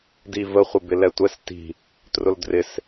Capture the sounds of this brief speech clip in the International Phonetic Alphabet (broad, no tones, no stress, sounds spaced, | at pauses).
d i v ə χʷ ə b ɪ l ɛ tʷ ɛ s t i̤ | t r ʊ l d r ɪ s